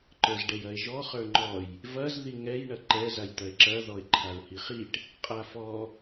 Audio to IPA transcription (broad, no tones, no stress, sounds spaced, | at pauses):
ǃ ə˞ z ɖ ɛ j ɐ e̯ ʒ ɔ χ ə˞ ŋ͡ǃ ɔ j | v ɐ z ð i ŋ ɛ j ɳ ɐ ǃ ɛ z a j t̪ ɐ e̯ ǁ ɐ ð ɔ e̯ ǃʰ a ɹ h i χ i ʈ | qʼ a f ɔ